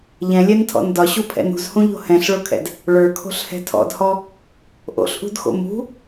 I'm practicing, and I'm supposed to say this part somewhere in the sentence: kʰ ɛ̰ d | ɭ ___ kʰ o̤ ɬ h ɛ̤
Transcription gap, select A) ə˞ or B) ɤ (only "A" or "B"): A